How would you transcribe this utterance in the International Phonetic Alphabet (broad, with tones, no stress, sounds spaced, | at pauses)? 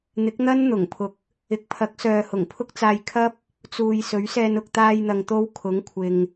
n̪ ɪ˨˥ k̚ n̪ ɐ˥ n n̪ ʊ˨˩ ŋ pʰ ʊ˨ k̚ | ɪ˨˥ k̚ pʰ ɐ˨˥ k̚ s œː˨ h ʊ˨˩ ŋ pʰ ʊ˥ k̚ t͡s aː˧ j kʰ ɐ˥ p̚ | t͡s uː˨ j s ɵ˨˥ ɥ s ɛː˧ n ʊ˨ k̚ t̪ aː˧ j n̪ ɐ˨ ŋ t̪ o˧ w kʰ ʊ˨˥ ŋ kʷʰ ɪ˨ ŋ